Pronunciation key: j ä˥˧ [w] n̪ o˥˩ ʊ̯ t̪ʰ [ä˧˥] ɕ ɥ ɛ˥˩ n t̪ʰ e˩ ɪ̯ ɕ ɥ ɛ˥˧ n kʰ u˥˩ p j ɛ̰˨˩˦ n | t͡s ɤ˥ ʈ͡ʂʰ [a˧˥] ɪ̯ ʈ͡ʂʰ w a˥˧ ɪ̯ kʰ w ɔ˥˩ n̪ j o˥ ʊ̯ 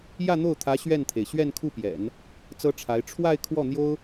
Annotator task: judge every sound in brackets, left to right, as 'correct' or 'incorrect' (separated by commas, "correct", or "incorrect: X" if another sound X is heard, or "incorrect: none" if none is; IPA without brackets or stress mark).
incorrect: none, correct, correct